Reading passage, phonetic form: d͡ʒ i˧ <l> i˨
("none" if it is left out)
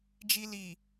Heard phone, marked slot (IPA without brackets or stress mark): l